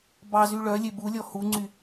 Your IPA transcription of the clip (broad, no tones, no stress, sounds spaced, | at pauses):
b ɑ z y ɭ œ lʲ e b u lʲ ɔ h u ŋ͡ǀ y